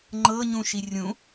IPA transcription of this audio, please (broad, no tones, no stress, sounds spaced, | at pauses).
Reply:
ŋ͡ǃ ɤ ɲ ũ ʃ i rʲ ũ